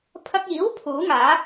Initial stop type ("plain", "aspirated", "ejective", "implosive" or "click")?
aspirated